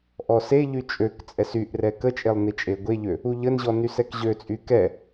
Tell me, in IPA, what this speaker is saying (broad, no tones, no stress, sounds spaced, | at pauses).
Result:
ʔ ɔ s e ʎ y t͡ʃʼ ø k t͡sʼ ɛ s y ʔ r ɛ k ə t͡ʃʼ e lˠ n i t͡ʃʼ e ɡʷ e ʎ ø | u ʎ ə n ʑ ɔ n y s ɛ k ʑ ø t͡sʼ y k ɛ